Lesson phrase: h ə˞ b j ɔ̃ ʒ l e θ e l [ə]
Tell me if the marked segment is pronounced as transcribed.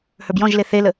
yes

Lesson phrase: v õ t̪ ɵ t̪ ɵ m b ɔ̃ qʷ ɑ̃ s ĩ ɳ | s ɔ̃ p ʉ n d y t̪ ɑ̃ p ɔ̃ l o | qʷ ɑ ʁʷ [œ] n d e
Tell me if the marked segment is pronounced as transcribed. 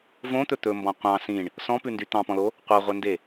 yes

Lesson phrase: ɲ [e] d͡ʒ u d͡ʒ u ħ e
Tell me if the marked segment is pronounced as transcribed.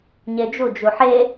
yes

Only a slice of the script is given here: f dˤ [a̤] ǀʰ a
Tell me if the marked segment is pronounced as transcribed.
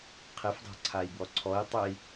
yes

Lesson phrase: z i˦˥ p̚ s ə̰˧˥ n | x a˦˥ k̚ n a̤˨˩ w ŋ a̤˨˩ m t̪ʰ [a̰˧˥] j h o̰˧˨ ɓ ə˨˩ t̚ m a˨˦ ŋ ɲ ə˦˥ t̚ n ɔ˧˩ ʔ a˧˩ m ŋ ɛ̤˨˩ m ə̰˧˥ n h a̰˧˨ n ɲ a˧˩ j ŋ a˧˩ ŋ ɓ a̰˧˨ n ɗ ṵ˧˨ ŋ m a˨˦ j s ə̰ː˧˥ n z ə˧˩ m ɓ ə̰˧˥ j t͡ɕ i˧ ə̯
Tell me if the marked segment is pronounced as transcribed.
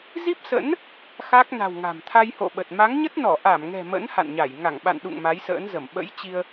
no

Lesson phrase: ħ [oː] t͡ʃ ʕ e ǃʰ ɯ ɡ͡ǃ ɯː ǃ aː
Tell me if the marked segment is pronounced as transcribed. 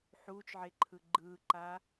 no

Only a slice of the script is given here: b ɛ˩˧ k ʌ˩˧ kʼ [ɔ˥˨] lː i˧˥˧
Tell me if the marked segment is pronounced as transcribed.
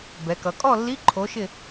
yes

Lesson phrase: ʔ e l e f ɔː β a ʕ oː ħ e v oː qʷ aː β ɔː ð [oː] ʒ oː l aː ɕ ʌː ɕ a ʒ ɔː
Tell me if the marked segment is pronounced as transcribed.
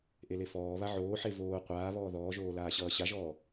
no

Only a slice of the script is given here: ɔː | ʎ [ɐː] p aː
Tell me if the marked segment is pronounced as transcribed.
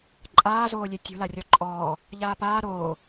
no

